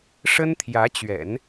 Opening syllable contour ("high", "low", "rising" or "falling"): high